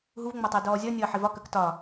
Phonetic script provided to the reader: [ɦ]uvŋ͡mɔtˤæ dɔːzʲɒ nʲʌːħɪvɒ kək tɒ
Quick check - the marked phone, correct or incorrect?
correct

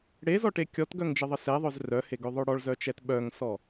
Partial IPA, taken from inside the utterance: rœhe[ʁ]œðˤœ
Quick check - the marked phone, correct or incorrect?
incorrect: ɡ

